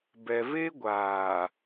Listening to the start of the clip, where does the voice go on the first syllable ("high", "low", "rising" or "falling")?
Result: low